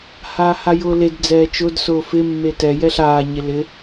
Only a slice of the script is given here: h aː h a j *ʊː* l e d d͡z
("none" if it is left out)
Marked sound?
ʊː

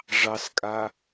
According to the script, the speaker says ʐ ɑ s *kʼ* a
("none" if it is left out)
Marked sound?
kʼ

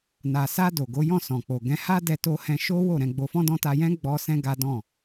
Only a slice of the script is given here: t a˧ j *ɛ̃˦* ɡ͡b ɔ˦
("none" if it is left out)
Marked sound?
ɛ̃˦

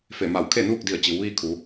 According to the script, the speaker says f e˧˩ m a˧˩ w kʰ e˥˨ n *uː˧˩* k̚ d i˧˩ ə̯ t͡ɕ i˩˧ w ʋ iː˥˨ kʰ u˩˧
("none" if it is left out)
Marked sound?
uː˥˨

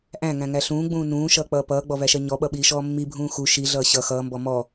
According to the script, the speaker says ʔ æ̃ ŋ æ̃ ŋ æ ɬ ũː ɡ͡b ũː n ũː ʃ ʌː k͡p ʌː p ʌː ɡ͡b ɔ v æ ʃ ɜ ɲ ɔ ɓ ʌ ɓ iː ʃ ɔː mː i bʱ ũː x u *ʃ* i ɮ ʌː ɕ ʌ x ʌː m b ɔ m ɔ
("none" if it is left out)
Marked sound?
ʃ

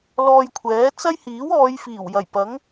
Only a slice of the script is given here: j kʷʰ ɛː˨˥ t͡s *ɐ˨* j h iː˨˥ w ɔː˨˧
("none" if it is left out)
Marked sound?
ɐ˥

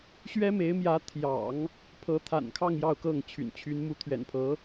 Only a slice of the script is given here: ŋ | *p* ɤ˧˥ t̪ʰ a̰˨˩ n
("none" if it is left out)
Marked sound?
pʰ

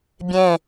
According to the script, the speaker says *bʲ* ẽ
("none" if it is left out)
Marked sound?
bʲ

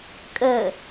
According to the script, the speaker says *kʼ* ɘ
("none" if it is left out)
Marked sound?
kʼ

